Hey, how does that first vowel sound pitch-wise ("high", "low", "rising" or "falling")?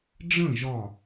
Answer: falling